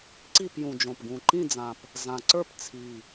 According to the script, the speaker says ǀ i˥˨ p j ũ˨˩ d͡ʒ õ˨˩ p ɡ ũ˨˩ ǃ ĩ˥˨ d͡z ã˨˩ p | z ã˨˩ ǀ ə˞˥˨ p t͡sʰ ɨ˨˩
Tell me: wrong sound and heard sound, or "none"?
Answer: ɨ˨˩ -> i˨˩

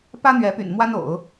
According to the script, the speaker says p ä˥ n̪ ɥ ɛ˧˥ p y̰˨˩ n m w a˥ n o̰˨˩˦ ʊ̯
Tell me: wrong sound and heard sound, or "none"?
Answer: none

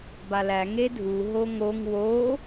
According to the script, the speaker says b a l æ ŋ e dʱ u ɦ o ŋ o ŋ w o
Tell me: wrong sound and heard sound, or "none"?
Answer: none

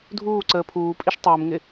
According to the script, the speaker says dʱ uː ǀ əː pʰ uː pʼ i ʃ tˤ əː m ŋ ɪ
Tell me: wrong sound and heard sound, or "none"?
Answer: none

